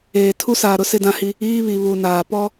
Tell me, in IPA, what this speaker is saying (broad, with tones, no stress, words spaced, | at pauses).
eː˨ tʰu˦saː˨ɾʊ˦ sɪ˦dã˦hi˦ | iː˦βi˨βu˨naː˨ pɔ˦